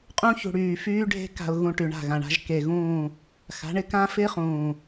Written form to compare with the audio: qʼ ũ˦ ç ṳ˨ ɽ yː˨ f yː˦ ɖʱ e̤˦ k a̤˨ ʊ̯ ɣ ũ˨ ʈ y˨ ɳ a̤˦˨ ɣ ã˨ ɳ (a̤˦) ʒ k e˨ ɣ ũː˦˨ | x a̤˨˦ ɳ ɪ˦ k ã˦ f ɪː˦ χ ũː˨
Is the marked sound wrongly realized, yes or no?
no